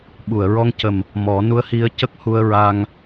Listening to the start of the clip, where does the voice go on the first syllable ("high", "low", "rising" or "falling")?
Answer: low